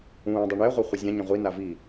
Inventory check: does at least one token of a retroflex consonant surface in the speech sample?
yes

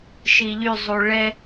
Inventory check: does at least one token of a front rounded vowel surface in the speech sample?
yes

